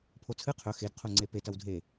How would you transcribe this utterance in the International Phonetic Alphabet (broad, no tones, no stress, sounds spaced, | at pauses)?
pʰ o t͡sʰ ɨ qʰ ɵ x e d qʰ u ŋ͡ǀ e p e t ɐ w dʱ e